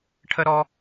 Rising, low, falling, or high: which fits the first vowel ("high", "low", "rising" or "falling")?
high